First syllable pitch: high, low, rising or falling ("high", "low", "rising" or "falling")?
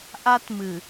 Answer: high